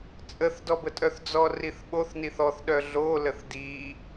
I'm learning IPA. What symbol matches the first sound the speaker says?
t͡sʼ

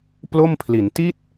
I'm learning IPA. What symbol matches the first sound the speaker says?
p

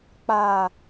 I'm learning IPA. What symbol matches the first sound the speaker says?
k͡p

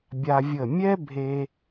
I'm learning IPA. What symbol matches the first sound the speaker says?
bʲ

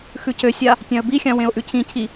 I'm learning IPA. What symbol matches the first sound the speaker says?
x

